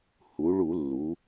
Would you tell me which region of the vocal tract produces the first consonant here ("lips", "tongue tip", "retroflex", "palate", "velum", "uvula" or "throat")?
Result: throat